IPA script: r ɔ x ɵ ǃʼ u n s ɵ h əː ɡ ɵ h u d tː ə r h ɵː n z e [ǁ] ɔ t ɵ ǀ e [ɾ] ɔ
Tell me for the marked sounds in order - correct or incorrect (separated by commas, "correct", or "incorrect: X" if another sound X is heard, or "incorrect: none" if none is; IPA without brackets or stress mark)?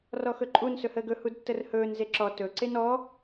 correct, incorrect: n